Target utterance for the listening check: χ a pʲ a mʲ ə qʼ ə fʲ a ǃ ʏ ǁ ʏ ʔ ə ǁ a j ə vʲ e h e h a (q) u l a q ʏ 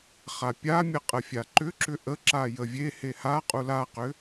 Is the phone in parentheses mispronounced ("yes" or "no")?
yes